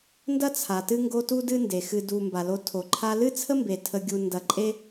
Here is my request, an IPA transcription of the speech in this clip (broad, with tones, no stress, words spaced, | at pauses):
ndɐ˥t͡sʰa˩ tɨ˥ŋɡo˦ tu˥dɨ˥nde˩ xɨ˨du˨mba˩lo˨ tʰo˩ǃʰa˦ lɨ˥t͡sʰə˥mbe˩tʰə˨ ɡʲu˨ndɐ˨ǃʼe˥